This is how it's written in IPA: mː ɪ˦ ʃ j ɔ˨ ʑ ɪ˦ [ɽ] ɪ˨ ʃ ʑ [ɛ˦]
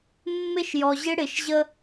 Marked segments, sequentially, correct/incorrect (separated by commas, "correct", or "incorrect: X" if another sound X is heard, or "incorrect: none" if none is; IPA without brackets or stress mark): correct, incorrect: ə˦